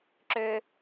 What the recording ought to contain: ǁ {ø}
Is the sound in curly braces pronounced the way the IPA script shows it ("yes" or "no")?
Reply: yes